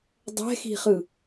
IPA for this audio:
dˤ ɛ̤ x i̤ χ ɯ

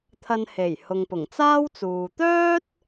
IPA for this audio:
t̪ʰ ɐ˧ n h e˨˩ j h ʊ˨ ŋ p ʊ˨˩ ŋ t͡s aː˥ w t͡s uː˨ t̪ œː˥ t̚

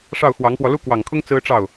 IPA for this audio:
ʂ ɑ˥˩ ʊ̯ x w ɑ˧˥ ŋ p w ɔ˧ l u˥ k w ɑ˨˩ ŋ kʰ ʊ˥ ŋ t͡s ɹ̩˥ ʈ͡ʂ ɑ˥˩ ʊ̯

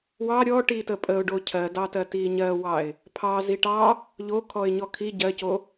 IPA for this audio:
w ɑ ɾʲ ɔ ʈ i t ə pʼ ə ʊ̯ ɖ o cʰ ɜ d ɑ t ɜ t i ɲ ɜ w ɑ ɪ̯ | pʰ ɑ z i ʈ ɑ | ʎ o kʰ ɔ ɪ̯ ɲ ɔ kʰ i ɟ ɜ c o

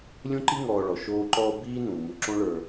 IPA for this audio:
lʲ ũ˥ ǃ i˥ ŋ ɔː˨ ɭ ɔ˩ ʃ oː˦ ǃ ɔː˦ b iː˥ n ũ˩ m u˨ ǁ õ˥ ɭ ə˞˨

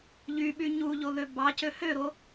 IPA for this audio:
ʎ y ɓ y ɲ u ʎ o ð ø b ɑ c ø h ø ɾ o

